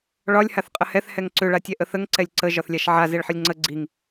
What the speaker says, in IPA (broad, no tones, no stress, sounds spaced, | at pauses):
ɭ ɒ lʲ h a θ qʼ ə h ɛ θ h ɛ ŋ ǀ ʏ ɭ a tʲ ɛ ʔ ə θ ə ŋ ǀ ɛ lʲ ǀ ə ʒ ɒ θ lʲ a ʃ ʕ a z e ɭ ħ ə lʲ ŋ͡ǀ ə ɡ͡ǀ i ŋ